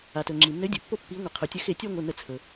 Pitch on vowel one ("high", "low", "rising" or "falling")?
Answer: low